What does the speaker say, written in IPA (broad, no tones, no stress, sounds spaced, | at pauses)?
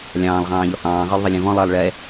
lʲ ɑ̃ː lˠ ʁ ɑ̃ː ʎ ɔ h ɑ̃ː ʁ ə˞ lˠ ðˤ ʌ lʲ ɛ̃ v ɔ̃ lˠ ʌː lˠ ɭ ɛ